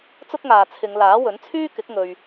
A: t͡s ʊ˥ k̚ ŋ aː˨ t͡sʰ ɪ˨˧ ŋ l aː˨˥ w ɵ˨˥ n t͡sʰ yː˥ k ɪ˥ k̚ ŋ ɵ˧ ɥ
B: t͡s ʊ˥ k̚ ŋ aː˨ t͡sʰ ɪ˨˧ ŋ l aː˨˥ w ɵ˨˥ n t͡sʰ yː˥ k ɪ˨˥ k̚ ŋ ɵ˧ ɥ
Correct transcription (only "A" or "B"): B